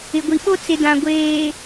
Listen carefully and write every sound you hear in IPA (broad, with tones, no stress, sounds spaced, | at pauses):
ɪ˨ ɡʷ i˨ ɓ o˦ t͡s ɪ˨ d ã˨ ɡʷ eː˨